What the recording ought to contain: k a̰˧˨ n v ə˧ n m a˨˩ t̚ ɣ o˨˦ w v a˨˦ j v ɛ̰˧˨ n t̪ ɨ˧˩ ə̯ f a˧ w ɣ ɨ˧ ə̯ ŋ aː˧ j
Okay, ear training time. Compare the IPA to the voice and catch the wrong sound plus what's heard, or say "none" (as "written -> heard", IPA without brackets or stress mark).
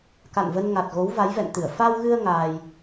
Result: m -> ŋ